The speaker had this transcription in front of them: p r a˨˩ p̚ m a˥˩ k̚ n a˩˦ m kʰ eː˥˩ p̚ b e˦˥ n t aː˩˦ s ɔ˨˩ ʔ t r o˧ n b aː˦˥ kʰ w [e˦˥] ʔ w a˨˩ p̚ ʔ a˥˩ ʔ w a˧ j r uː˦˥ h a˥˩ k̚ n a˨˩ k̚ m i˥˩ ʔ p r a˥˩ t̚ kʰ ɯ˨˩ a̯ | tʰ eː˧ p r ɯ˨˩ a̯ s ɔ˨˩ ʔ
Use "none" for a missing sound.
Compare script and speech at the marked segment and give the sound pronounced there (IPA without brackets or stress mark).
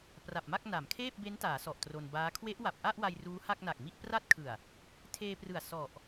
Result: e˦˥